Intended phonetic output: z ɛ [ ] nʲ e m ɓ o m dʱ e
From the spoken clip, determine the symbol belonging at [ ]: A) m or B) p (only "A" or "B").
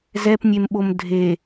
B